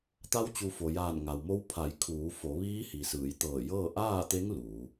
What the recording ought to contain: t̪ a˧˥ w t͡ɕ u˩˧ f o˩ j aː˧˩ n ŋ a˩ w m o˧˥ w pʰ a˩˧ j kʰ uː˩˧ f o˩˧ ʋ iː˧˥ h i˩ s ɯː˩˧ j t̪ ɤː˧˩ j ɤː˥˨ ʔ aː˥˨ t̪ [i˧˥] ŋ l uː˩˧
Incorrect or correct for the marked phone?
incorrect: e˧˥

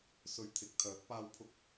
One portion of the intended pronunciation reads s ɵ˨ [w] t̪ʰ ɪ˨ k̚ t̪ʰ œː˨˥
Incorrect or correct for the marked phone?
incorrect: ɥ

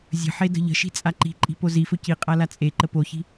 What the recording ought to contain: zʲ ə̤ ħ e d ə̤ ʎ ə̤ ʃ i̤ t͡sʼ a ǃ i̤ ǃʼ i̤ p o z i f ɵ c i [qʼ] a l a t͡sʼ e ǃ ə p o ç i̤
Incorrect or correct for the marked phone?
correct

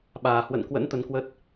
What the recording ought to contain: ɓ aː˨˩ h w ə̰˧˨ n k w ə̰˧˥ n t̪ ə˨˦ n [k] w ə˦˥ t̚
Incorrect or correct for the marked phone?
correct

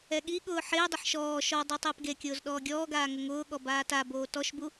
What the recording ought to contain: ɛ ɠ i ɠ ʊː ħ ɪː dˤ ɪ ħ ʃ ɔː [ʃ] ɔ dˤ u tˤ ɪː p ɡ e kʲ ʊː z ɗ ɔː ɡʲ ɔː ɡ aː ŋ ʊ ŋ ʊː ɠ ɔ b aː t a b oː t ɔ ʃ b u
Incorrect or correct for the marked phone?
correct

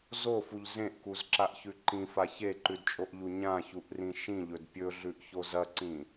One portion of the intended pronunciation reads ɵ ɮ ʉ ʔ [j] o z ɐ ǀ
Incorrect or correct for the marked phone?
incorrect: ç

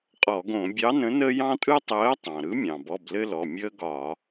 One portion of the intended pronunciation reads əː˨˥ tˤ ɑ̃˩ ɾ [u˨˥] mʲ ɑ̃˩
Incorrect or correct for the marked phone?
incorrect: ɯ˨˥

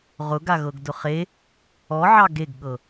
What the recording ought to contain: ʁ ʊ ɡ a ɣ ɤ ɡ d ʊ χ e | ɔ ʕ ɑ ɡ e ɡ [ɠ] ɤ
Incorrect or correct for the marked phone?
correct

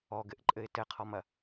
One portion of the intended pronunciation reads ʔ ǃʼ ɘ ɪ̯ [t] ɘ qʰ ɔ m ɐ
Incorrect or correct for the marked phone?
correct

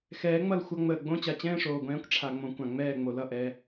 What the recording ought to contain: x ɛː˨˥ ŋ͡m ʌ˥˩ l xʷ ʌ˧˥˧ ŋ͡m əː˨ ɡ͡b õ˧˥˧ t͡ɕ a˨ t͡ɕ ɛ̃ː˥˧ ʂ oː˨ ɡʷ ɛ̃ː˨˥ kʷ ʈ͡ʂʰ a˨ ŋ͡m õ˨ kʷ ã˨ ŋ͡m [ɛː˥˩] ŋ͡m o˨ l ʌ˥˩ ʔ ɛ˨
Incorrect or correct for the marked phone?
correct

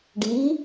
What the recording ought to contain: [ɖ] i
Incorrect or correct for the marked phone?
correct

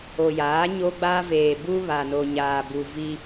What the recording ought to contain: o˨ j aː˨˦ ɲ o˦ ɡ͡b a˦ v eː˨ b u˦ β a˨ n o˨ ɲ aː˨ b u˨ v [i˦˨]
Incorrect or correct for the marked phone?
incorrect: i˦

